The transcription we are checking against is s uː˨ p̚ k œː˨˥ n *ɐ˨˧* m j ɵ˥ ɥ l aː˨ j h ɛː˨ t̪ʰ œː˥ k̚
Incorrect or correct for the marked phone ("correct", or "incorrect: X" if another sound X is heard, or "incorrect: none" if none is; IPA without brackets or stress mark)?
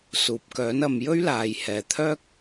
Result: correct